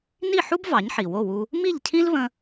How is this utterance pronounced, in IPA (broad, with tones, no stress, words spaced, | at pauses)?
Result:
ni˥˩ħu˥b vɑ˩˥ɲħi˩wo˥˩wu˧ | mi˥˩ʎcʰĩ˥lβə̃˧